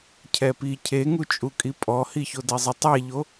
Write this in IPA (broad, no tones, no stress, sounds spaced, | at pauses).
cʰ ɛ p i cʰ e ŋ u t͡ʃʼ u kʼ i pʼ ɔ h i ç o d ɛ zˤ ɪ tˤ ɛ ʎ o